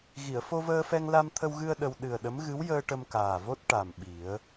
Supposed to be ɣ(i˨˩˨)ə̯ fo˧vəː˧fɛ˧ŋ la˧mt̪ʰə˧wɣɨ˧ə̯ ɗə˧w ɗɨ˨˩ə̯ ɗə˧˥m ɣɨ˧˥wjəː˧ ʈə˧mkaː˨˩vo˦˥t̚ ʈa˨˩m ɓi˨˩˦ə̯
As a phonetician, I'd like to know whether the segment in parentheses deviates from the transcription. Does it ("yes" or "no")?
no